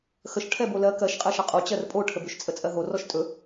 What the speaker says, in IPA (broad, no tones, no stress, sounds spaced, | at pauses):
x ə ʃ ʈʰ ɛ b o l ɜ k ɜ ʃ qʼ ɜ ʃ ʌ qʼ o t͡ɕ ɜ r pʼ o ʈʰ ə b ʏ ʃ t͡sʼ ə t͡sʼ ɜ ɦ o r ɔ ʃ tʼ ɵ